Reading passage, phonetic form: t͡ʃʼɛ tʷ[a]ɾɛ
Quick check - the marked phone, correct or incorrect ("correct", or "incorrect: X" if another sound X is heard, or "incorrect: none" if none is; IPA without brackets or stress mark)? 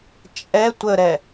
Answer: incorrect: ə